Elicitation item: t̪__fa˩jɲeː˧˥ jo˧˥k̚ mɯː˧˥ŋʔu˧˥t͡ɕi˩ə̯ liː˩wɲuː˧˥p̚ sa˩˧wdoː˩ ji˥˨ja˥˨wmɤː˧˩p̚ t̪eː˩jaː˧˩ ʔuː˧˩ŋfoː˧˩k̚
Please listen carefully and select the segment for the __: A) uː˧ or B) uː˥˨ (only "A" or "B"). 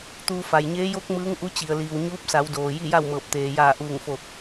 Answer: A